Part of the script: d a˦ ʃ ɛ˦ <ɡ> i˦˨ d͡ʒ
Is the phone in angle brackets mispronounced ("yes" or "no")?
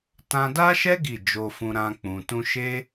no